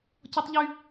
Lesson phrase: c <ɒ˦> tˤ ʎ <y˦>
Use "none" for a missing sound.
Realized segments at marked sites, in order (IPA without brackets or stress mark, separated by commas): ɒ˦, y˦